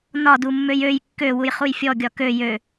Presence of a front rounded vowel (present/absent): present